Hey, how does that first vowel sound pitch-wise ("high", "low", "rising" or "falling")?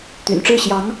low